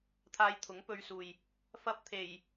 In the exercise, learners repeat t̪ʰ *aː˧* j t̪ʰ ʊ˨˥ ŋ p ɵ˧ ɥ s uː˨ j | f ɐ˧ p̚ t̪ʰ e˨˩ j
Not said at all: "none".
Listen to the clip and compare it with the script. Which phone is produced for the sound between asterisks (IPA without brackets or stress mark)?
aː˧